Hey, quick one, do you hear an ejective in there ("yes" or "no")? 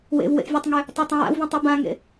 no